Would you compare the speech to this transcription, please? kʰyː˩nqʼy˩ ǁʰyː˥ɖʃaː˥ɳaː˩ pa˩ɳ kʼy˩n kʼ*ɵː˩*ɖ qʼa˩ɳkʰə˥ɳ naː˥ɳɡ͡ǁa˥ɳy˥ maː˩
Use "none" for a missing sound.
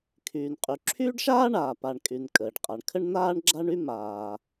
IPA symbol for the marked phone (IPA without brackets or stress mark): əː˩